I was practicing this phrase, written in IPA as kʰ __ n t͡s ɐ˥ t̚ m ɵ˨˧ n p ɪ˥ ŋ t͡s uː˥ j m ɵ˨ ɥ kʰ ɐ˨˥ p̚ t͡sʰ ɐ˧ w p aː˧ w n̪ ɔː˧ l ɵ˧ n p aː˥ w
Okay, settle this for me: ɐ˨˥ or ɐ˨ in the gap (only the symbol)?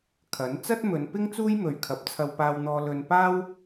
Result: ɐ˨˥